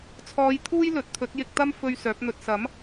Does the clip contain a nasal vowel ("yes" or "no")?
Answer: no